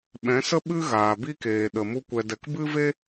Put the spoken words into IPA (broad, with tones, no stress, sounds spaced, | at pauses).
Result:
ɓ ɛ̃˨˦ s ə˦ ɓ ɨ˦ ɣ aː˨ b i˦ k eː˨ ɗ ə˨ m u˧ kʷ ɛ˨ d ɛ˨ k b ɨ˦ v e˦